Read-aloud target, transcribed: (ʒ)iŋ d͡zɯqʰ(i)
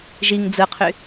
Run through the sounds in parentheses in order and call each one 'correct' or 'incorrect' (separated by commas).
correct, incorrect